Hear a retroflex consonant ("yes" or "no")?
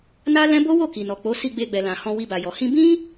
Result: no